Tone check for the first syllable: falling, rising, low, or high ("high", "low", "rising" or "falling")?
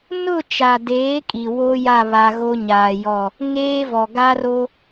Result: falling